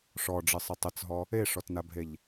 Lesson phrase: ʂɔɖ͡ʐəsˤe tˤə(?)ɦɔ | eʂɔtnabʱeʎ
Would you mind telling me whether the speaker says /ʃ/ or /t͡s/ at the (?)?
t͡s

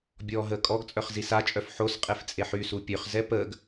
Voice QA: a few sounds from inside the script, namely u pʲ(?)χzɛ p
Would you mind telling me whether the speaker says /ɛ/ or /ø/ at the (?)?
ø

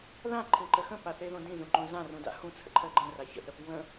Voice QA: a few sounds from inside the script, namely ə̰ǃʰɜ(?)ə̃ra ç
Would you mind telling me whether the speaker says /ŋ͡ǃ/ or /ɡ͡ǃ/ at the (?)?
ɡ͡ǃ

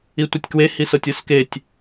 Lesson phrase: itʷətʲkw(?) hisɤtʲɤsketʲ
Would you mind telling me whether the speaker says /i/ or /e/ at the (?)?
e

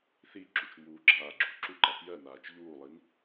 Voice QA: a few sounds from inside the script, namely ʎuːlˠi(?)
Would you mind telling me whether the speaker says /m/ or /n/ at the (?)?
n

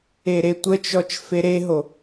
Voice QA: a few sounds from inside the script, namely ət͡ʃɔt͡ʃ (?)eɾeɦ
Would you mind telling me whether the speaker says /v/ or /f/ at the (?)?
f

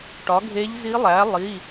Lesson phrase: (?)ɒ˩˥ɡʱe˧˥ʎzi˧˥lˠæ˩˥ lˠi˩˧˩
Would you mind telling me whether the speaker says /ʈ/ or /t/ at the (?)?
ʈ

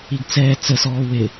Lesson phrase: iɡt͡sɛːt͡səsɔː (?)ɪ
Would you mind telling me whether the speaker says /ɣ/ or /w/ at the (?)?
w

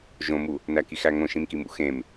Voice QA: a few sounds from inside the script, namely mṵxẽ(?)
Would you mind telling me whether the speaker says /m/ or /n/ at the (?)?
m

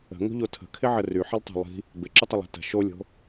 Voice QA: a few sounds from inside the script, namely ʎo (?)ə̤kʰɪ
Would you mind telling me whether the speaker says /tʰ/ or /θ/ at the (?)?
tʰ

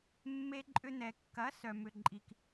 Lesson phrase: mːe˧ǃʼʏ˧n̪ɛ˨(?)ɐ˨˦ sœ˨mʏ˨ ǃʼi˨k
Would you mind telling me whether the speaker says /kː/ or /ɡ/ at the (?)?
kː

